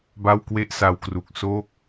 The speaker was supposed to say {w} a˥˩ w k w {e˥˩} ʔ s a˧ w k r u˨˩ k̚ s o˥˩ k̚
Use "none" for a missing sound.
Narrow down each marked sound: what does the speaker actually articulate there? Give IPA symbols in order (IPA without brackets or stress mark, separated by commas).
b, e˥˩